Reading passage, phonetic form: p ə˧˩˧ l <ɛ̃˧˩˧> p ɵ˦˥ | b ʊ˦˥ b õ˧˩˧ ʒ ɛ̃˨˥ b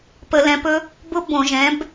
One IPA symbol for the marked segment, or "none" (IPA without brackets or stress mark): ɛ̃˨˥